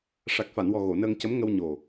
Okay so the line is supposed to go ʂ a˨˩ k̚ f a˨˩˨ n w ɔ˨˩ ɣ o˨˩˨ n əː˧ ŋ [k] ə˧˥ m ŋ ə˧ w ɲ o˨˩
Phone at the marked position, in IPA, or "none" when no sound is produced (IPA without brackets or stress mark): c